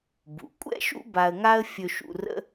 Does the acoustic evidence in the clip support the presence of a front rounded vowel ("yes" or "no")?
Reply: no